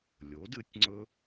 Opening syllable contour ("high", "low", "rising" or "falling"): rising